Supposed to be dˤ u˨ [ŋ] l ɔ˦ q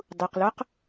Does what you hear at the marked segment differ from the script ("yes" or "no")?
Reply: yes